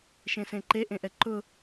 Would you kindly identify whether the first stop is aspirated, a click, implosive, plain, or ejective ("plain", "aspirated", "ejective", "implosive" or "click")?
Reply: click